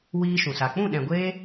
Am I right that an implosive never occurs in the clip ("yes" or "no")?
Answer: no